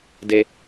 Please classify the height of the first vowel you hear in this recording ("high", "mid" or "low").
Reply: mid